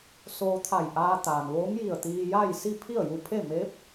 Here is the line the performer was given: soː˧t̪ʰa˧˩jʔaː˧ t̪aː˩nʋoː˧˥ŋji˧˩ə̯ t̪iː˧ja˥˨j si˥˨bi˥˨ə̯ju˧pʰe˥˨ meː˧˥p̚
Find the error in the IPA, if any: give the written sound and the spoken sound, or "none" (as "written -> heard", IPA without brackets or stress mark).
b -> pʰ